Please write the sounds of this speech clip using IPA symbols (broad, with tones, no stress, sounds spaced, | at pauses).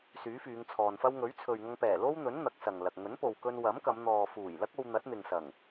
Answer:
s yː˨˥ f yː˨˧ ŋ t͡sʰ ɔː˨ n f ɐ˥ w ŋ ɵ˨˥ ɥ t͡sʰ ɵ˨ ɥ ŋ ɐ˧ ŋ p ɛː˨˩ l o˥ w n̪ ɵ˨˥ n n̪ ɐ˨˥ k̚ s ɐ˨ ŋ l ɐ˨ k̚ ŋ ɵ˨˥ n p o˨ w k ɵ˧ n w ɐ˨˥ m k ɐ˨˧ m n̪ ɔː˨ f uː˨˩ j l ɐ˥ k̚ o˧ w n̪ ɐ˨˥ t̚ n̪ ɪ˨ ŋ s ɐ˨˩ ŋ